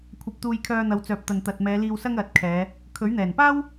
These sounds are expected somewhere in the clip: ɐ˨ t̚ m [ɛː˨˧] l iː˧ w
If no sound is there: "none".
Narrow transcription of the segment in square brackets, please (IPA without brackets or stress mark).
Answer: ɛː˨˧